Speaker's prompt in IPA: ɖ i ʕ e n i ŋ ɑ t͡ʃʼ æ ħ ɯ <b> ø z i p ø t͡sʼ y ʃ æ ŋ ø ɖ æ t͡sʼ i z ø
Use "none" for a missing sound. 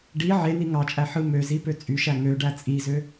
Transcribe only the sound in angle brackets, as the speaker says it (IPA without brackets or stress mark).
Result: m